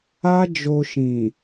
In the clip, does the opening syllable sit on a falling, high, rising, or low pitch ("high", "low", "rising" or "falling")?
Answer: high